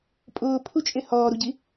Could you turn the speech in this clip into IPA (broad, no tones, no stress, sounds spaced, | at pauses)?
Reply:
pʼ ʊː pʰ u t͡ʃʼ e h ɔː ɾ u ɟ i